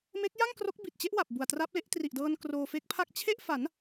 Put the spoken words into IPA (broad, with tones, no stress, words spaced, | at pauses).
me˦˥k̚ja˥˩ŋ kro˦˥k̚bi˨˩t̚t͡ɕe˦˥ʔwa˨˩p̚ bu˨˩a̯tra˦˥p̚le˦˥ʔ tri˨˩ʔdɤː˧n kroː˧fe˦˥k̚pʰa˥˩k̚ t͡ɕʰe˥˩ʔfa˩˦n